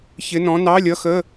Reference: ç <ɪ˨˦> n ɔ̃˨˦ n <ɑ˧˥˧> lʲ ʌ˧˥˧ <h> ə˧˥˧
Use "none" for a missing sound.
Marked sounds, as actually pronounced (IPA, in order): ɪ˨˦, ɑ˧˥˧, x

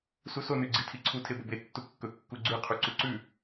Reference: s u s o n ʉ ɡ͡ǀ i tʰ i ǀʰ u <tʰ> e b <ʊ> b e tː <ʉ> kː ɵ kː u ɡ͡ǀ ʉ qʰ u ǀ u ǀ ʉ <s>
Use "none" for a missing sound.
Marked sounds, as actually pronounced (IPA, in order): tʰ, ɵ, u, none

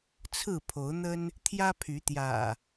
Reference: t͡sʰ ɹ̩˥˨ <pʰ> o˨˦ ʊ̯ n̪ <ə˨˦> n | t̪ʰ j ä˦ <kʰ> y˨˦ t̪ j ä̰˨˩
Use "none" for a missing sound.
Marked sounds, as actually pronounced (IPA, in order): pʰ, ə˦, pʰ

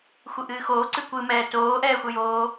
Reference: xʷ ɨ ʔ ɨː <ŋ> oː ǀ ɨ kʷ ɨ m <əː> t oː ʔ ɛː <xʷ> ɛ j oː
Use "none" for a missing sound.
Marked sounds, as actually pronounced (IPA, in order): x, ɛː, xʷ

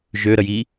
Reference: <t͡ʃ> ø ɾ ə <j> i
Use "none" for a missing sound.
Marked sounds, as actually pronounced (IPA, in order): ʒ, j

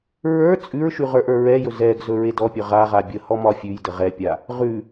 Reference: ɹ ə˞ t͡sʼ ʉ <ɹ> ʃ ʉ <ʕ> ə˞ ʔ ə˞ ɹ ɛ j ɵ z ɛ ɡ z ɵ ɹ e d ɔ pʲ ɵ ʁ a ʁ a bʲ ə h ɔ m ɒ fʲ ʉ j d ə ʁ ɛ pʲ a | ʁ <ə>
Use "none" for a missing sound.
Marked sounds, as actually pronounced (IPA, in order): ɹ, ʁ, ʉ

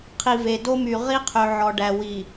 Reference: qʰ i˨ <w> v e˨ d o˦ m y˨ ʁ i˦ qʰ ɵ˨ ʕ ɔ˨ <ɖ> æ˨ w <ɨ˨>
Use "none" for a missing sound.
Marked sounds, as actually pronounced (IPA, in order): none, ɖ, i˨

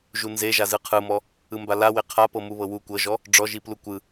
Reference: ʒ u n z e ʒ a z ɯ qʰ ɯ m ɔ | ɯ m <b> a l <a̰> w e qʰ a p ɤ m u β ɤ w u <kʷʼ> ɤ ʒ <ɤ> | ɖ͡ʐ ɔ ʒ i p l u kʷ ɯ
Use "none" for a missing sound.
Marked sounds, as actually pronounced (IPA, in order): b, a, kʷ, ɔ

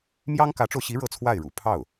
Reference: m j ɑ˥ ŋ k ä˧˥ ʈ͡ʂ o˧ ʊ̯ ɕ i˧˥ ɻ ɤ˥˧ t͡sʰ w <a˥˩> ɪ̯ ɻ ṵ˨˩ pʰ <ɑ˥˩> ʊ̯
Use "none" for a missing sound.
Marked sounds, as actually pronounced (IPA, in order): a˥˩, ɑ˥˩

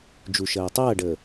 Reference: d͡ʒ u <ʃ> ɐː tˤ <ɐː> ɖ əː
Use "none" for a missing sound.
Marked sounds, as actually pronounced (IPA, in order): ʃ, ɐː

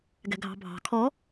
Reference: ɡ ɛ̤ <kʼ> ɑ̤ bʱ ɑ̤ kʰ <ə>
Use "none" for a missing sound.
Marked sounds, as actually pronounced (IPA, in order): ɡʱ, ɔ

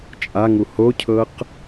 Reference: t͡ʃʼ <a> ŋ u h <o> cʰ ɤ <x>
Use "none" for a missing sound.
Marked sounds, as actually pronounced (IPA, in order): a, o, q

